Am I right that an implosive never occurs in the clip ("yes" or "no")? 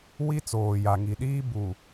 no